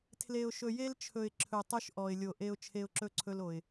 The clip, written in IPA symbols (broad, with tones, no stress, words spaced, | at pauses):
tʰle˨ʊ̯ʃɵ˨je˦lt͡ʃʰɵ˨ɪ̯ ǁʰɵ˨tˤɵ˦ʃ ʔɔ˨ɪ̯lʲo˨ʔe˦ʊ̯ t͡ʃʰe˦ʊ̯ǁɵ˦ǀʰɵ˦lo˨ɪ̯